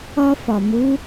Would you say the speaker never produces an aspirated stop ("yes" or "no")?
yes